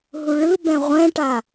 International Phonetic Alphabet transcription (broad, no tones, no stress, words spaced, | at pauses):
ɦuɭɯbɛ̃ ʁʷɛ̃ʈa